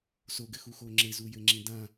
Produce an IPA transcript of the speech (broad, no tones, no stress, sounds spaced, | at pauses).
s o ɡ ɘ x u x o ŋ͡ǁ e z u j ɘ ŋ͡ǁ ĩ d ã